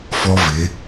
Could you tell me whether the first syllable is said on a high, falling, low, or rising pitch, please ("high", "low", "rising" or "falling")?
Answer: high